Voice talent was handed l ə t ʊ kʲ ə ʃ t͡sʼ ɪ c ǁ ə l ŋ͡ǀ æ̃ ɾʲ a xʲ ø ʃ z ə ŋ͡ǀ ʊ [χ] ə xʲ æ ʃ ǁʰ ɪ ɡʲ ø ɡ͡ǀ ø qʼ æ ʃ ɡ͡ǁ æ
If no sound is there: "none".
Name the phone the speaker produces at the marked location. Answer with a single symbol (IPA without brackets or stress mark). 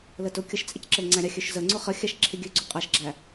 χ